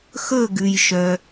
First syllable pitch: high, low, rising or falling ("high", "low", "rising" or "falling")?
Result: falling